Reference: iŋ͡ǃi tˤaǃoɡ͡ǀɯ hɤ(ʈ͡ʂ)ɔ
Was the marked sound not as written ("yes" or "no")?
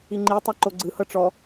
no